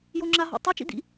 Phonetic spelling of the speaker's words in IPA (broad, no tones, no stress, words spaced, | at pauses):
joŋ͡ǁaɦɔ̰tˤɛ t͡ʃḭd̪ḭ